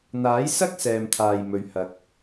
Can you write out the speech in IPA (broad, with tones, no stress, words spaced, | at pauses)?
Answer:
n̪aː˨˥jsɐ˥k̚ sɛː˨mt̪ʰaː˨jmɵ˨˧ɥhɐ˨˥k̚